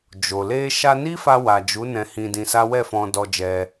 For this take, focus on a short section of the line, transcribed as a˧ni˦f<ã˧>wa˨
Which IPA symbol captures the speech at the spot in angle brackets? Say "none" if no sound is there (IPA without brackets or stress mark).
a˧